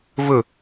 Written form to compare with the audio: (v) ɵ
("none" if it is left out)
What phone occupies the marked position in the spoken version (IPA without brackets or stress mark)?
v